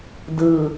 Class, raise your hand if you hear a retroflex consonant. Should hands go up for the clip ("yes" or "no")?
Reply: no